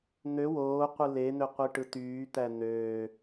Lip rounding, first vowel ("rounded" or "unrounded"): rounded